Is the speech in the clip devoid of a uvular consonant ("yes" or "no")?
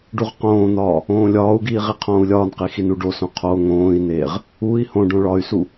no